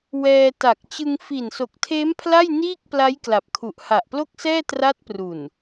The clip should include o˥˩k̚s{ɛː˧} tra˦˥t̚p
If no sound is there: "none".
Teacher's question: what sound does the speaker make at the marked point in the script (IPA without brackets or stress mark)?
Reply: ɛː˥˩